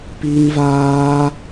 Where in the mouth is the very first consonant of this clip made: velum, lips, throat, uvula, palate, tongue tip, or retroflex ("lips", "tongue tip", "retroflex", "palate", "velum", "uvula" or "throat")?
lips